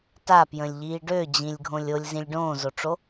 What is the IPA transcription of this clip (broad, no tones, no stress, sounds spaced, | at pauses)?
t a p j ə̃ lʲ ʎ iː ɖ ø d͡ʑ ĩ lʲ ɡʱ õ lʲ o lʲ z ĩ lʲ ɖ õː z o ʈ͡ʂ o